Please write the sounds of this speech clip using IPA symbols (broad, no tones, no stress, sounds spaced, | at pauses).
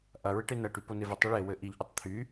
ʔ ɐ ɹ ɪ ʈ e n ɐ ʈ y p o n e v ɪ tˤ e ɭ e w ɘ ʔ i ʎ ʔ y tˤ t̪ʰ y